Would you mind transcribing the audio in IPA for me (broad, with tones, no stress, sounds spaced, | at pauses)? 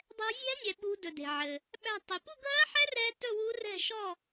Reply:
dˤ ɛ̤˦˥ zʲ æ̤˦˥ nʲ ɛ˨ ɓ ṳ˦˥ d ɵ˨ d e̤˨ ʕ ɘ˨ | ɓ æ̤˥˧ tˤ ɵ˨ p u˥˧ ɡʱ ɜ˦˥ ħ ɛ˦˥ r ɛ˦˥ t ɵ˥˧ w u˦˥ r ɛ̤˥˧ ʃ ɔ˥˧